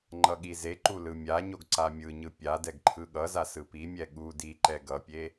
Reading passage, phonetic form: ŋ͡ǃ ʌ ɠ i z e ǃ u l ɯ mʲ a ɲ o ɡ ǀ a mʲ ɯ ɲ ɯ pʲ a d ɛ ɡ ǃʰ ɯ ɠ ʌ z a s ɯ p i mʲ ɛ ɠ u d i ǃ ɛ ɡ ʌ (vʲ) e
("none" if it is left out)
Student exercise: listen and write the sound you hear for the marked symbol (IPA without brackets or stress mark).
pʲ